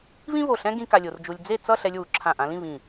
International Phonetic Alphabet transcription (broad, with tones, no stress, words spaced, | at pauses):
βĩ˥βo˧˩ɬɛ̃˥ ɡĩ˥ka˧lʲo˩˧rd͡ʒu˧lʲ d͡ze˥˧t͡sʌ˥˧ ɬɛ˧lʲwu˩˧ ǁʰã˧˩ʔã˧lĩ˥˧ βĩ˧˩